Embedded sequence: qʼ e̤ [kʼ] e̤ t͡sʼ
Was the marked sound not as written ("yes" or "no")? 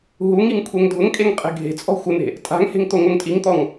yes